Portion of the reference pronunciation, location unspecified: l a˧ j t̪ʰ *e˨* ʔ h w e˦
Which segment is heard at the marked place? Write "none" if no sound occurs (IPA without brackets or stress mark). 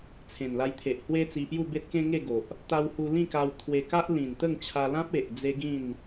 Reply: e˨